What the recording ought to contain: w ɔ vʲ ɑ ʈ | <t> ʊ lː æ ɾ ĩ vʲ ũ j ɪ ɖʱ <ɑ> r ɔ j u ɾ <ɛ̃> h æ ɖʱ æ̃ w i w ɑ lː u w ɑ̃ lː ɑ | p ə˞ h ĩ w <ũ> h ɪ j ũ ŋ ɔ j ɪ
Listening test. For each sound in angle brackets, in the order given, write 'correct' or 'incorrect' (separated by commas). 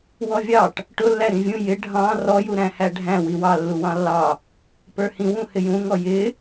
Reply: incorrect, incorrect, incorrect, correct